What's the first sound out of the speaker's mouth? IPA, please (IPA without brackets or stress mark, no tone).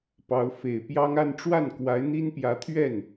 p